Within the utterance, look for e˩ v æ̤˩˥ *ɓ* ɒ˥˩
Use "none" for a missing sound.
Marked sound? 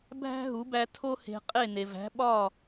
ɓ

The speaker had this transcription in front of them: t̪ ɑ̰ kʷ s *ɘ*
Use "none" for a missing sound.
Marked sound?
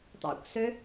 ø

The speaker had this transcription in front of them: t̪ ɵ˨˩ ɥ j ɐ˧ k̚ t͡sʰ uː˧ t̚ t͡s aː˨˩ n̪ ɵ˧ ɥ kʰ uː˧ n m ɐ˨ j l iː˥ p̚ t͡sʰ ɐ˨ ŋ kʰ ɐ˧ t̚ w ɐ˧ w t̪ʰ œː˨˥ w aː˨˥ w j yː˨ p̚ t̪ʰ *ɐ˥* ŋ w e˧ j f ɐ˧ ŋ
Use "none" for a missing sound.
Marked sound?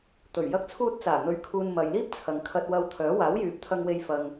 ɐ˧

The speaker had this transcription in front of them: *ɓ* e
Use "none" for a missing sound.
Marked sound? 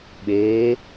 ɓ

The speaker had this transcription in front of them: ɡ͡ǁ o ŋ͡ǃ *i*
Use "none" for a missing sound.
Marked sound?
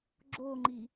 i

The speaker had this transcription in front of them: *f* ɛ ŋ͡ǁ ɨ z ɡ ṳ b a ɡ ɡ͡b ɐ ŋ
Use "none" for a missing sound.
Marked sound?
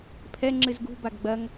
pʰ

